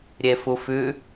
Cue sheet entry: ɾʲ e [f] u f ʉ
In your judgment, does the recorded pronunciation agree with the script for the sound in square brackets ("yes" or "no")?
yes